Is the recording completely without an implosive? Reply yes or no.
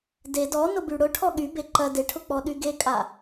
no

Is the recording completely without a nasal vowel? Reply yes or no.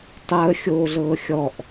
yes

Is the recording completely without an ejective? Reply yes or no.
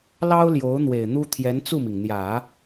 yes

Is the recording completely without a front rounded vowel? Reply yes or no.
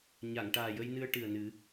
yes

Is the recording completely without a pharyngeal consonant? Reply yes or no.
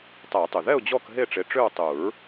yes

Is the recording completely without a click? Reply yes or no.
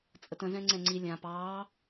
no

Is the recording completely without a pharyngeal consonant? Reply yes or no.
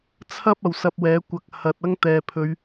yes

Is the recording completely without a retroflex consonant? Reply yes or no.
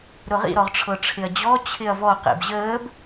no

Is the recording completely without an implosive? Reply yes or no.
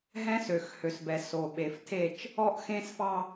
no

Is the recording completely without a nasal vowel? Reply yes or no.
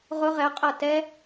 yes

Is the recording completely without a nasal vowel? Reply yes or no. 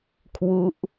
yes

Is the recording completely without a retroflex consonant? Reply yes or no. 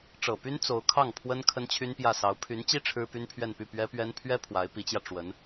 no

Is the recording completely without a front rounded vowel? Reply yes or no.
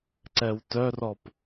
no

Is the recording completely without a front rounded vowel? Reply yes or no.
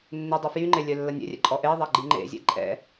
no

